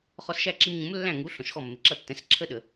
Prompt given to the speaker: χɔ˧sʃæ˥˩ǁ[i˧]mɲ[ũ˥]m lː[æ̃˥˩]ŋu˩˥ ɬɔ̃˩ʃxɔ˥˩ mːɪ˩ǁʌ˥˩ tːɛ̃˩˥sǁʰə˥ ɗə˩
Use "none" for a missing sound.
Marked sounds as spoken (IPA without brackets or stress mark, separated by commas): i˧, ũ˩˥, æ̃˥˩